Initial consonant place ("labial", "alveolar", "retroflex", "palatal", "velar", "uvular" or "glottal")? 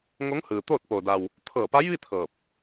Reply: velar